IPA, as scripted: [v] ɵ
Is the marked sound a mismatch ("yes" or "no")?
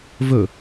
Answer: no